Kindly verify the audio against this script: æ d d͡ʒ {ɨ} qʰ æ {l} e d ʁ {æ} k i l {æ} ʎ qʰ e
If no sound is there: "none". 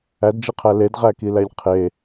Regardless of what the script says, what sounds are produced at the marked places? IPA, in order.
i, l, æ, æ

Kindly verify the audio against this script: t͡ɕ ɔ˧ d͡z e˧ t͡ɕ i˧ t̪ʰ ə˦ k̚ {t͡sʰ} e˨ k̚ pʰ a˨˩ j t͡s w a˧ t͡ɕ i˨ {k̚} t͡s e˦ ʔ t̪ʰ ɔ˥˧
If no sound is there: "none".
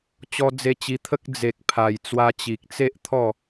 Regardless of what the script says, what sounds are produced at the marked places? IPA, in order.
d͡z, k̚

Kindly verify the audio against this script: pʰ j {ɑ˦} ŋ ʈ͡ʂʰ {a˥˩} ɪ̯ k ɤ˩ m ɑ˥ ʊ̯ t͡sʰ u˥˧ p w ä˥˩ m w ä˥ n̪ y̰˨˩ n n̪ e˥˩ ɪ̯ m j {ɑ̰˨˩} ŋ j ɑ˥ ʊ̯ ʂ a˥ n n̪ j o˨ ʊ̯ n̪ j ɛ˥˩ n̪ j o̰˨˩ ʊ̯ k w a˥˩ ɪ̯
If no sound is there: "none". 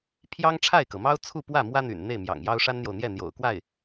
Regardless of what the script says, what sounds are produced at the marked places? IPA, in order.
ɑ˥, a˥˩, ɑ̰˨˩

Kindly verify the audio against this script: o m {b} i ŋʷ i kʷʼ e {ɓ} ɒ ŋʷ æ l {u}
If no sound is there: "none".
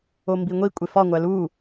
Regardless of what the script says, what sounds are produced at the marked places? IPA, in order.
b, f, u

